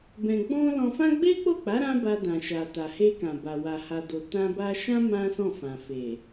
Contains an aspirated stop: no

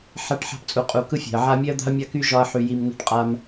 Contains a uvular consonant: yes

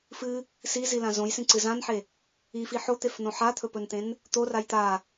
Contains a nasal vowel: yes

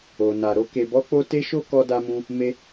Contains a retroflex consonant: no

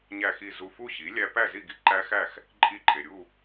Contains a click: yes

